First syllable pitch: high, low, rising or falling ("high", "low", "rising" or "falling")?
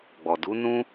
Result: low